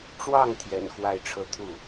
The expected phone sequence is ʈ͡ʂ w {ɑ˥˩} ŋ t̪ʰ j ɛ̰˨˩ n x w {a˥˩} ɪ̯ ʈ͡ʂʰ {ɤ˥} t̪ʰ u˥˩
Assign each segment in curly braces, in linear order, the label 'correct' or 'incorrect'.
correct, correct, correct

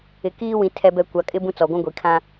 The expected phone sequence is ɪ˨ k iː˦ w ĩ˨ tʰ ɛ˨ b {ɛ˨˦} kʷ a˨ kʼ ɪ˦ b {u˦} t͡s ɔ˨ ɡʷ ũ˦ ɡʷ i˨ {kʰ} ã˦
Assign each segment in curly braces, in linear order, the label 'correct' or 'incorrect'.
incorrect, incorrect, correct

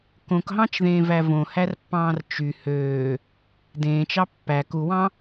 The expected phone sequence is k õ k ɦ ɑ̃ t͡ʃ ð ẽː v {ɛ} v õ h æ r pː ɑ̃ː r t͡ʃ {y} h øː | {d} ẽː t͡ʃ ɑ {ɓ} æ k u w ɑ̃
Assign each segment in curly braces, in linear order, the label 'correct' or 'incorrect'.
incorrect, correct, correct, incorrect

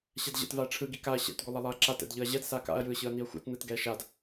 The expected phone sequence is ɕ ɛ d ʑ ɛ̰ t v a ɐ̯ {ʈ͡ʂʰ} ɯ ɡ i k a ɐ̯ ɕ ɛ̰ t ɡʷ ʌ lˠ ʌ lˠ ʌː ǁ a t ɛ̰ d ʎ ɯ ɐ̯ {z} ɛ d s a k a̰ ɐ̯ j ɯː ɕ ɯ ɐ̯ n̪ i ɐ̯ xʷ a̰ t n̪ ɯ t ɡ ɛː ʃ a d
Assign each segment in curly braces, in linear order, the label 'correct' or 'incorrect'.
correct, incorrect

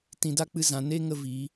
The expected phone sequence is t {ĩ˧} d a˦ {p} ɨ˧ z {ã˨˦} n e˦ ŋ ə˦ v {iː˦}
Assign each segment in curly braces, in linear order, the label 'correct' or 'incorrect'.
correct, incorrect, correct, incorrect

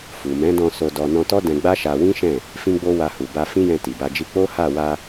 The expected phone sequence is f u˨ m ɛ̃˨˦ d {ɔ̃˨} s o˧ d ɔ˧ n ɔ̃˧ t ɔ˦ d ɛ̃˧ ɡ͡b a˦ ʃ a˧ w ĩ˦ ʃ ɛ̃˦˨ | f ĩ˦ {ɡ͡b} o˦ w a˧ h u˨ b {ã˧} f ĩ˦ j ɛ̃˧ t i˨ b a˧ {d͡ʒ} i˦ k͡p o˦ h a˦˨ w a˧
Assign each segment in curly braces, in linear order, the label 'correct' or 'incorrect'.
incorrect, correct, incorrect, correct

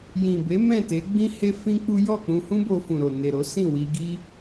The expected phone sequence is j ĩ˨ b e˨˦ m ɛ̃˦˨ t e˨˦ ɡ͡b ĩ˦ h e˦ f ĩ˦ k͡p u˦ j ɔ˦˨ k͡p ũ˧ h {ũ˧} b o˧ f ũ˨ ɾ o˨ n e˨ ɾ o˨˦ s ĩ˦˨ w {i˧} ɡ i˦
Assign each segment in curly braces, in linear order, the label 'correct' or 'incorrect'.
incorrect, correct

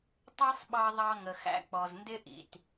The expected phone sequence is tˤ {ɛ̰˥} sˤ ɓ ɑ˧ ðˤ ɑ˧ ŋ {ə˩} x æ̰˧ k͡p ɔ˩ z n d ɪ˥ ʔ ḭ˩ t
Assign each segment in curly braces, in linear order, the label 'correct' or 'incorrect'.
incorrect, correct

